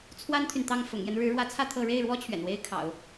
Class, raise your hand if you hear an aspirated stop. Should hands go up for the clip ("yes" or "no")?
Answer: yes